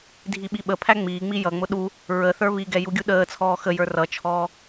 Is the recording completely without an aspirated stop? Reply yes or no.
no